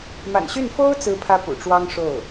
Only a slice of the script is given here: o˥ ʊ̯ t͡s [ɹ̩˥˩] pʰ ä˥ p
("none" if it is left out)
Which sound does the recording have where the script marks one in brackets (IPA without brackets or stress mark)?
ɹ̩˥